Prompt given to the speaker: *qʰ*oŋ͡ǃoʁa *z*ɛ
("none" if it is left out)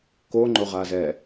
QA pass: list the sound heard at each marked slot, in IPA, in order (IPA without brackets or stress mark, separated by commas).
k, z